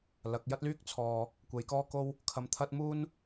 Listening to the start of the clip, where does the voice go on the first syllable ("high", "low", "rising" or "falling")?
rising